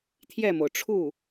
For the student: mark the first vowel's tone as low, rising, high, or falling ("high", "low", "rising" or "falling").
falling